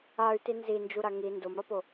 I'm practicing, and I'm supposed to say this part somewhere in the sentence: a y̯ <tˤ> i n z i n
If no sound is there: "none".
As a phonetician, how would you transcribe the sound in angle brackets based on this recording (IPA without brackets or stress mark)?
t